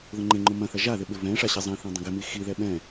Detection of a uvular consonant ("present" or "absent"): absent